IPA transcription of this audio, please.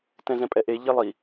t ɛ̃ z ɛ̃ pʼ ɛ ʔ e ʎ e lˠ i

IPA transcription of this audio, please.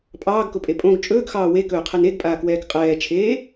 pʼ ɑː ɡ k ʊ pʼ e pʼ õ ɡ t͡ʃʼ ɵː ɡ x ɑː w e k ɵː qʰ ɛ n e ɡ pʼ aː k w ɛː k qʼ ɛː t͡ʃʰ eː

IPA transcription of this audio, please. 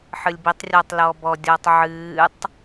ħ ɨ lʲ b i tˤ rʲ ɔː tˤ l ɔː b ɔ dʲ ɔː tˤ ʕ ɨː tˤ

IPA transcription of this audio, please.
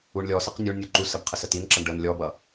u ɳ lʲ ɔ s ə q nʲ u ɳ nʲ u ǃ u s ə b qʰ ə s ə t i n ǁ ʌ ɳ ɖ ə n lʲ ɔ b ʌ

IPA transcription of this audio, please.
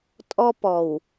tʼ ɔ˦ p ɔ˨ w

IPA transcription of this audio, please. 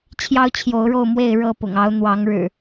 t͡ɕʰ j ɑ˦ ʊ̯ t͡ɕʰ j o˨˦ ʊ̯ ɻ o˥˨ ʊ̯ m w e˥˨ ɪ̯ ɻ ɤ˥˨ p ʊ̰˨˩ ŋ ɑ˨˦ ʊ̯ n̪ w ɑ˨˦ ŋ ɻ ɻ̩˨˩

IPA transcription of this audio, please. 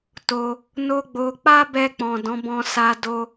t o˧ | n o˦ ɡ͡b o˧ k͡p a˦ b ɛ˧ k͡p ɔ̃˨ d ɔ̃˨˦ b ɔ̃˧ s a˧ d o˧

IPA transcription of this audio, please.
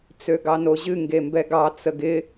t͡s ø ɡ ɑ n o ʑ ɨ ŋ ɡ e m b ɛ ɡ ɑ t͡s ə ɡ ɪ

